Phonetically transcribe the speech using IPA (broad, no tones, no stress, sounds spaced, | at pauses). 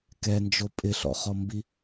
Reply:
k ɛ n d͡ʒ o pʼ ɪ ɬ ɔ̰ χ ɔ m b i